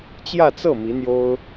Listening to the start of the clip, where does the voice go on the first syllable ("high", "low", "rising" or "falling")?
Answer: falling